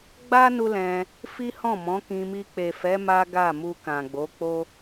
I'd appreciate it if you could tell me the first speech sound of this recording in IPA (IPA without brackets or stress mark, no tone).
ɡ͡b